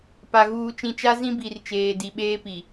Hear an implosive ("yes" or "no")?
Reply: yes